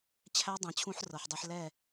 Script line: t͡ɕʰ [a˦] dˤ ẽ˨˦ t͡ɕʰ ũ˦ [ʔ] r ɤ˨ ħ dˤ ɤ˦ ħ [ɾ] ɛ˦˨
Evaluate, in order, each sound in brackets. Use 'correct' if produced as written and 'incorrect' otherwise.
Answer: incorrect: æ˦, incorrect: ħ, incorrect: l

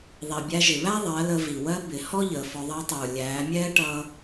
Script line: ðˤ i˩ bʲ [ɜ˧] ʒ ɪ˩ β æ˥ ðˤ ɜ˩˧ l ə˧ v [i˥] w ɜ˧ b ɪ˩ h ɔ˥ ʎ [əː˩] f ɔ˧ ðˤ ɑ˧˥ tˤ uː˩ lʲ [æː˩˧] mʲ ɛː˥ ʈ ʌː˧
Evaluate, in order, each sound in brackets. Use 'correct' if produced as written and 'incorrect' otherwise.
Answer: incorrect: æ˧, incorrect: i˩, correct, correct

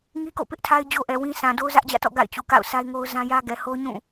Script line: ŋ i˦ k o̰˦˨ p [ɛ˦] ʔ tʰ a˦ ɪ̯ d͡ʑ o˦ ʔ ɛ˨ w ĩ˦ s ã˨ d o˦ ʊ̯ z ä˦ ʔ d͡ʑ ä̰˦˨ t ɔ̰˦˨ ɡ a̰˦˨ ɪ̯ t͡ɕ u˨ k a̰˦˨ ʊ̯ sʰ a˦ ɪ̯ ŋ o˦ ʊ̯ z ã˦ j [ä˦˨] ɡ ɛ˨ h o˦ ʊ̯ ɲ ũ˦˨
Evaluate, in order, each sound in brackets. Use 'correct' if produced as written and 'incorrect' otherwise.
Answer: incorrect: ɪ˦, incorrect: ä˦

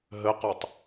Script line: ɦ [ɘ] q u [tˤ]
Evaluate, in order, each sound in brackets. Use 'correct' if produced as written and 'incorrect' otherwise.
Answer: correct, correct

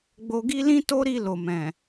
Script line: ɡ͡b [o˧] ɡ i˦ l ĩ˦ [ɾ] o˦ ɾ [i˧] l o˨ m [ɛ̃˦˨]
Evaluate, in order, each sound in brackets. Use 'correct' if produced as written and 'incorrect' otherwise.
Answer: correct, incorrect: t, correct, incorrect: ɛ̃˨

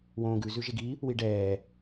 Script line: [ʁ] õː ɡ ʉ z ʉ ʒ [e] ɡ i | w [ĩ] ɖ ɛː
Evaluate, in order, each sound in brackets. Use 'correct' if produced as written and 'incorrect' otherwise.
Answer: incorrect: w, correct, incorrect: i

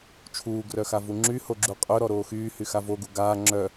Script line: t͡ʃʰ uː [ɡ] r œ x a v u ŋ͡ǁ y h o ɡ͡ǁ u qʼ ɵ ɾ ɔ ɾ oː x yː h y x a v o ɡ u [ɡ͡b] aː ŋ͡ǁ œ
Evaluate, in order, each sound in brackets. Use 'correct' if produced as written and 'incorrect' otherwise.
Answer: correct, incorrect: ɡ

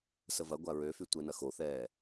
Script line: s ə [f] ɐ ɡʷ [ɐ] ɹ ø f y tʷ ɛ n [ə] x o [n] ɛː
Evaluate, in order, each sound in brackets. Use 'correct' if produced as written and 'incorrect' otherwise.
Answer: incorrect: v, incorrect: a, incorrect: ɐ, incorrect: θ

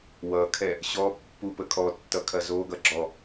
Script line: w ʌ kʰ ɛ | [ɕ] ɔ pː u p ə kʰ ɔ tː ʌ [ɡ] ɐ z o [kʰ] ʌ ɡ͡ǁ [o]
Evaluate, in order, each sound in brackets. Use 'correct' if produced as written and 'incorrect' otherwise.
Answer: correct, incorrect: kʰ, incorrect: ɡ, incorrect: ɔ

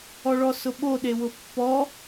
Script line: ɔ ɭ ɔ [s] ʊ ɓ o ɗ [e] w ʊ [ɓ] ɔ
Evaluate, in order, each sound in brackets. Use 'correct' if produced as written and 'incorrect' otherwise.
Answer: correct, correct, incorrect: pː

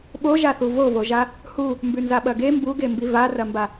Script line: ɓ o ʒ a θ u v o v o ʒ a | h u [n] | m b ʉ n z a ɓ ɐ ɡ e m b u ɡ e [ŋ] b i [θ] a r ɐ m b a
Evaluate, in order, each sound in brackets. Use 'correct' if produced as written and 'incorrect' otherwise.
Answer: incorrect: none, incorrect: m, incorrect: v

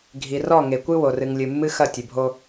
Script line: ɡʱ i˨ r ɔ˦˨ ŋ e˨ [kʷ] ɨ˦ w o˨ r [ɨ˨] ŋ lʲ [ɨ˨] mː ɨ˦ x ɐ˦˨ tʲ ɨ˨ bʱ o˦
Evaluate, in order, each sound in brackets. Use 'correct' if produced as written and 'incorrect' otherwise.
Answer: correct, correct, correct

